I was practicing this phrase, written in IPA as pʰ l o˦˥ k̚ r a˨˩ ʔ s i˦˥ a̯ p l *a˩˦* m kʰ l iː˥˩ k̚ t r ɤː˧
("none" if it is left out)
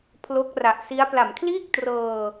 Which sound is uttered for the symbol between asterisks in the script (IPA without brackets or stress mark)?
a˩˦